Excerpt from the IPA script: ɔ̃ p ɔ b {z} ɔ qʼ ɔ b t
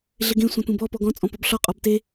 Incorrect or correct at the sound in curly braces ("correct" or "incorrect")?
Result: incorrect